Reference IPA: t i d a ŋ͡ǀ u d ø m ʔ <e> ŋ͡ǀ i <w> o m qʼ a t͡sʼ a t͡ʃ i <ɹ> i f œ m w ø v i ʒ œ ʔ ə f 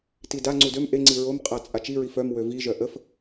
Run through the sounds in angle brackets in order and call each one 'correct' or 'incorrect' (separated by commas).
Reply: correct, incorrect, correct